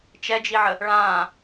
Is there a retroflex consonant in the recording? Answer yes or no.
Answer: yes